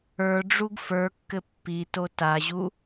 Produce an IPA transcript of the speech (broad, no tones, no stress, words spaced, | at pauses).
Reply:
ə˞ɖ͡ʐuɡ fə˞kːɘ pːi totaʑu